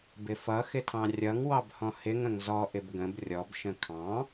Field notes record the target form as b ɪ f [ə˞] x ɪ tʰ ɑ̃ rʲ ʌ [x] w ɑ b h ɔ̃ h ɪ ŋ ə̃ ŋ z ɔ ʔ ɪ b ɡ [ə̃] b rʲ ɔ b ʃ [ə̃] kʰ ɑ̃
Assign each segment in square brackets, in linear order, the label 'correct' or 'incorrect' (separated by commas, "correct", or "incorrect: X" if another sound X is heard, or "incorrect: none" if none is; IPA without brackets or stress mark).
incorrect: ʌ, incorrect: ŋ, correct, correct